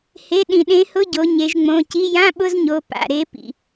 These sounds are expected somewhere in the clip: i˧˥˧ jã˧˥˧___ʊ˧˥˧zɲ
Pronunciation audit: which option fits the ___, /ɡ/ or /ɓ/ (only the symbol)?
ɓ